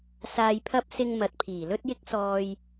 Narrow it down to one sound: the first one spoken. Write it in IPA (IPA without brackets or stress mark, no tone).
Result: s